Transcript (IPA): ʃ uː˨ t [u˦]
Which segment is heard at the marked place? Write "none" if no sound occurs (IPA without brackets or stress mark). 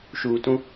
ũ˦